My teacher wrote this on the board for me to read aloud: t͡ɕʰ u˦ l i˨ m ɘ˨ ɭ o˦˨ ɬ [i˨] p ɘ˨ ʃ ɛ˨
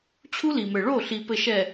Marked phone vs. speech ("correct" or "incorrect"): correct